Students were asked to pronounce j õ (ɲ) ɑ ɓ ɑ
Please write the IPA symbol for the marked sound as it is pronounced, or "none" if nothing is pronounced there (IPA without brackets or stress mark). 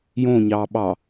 ɲ